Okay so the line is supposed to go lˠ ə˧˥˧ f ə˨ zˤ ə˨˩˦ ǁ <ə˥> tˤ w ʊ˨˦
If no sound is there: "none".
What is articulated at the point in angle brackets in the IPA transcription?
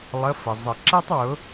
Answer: ɛ˥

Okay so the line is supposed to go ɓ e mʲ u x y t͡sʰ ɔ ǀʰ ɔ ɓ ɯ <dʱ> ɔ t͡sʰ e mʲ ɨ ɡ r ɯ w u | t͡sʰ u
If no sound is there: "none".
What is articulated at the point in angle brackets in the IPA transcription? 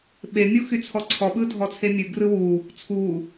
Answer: dʱ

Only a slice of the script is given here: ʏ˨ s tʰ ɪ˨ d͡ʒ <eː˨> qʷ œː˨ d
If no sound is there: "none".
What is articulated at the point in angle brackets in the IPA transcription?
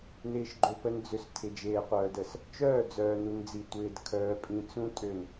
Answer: eː˨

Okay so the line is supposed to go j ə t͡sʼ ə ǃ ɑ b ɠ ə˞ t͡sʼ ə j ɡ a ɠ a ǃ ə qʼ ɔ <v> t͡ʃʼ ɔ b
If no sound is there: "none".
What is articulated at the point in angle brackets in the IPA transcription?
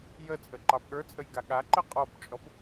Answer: b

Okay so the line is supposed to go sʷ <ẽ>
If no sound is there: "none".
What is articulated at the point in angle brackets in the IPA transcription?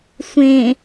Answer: ẽ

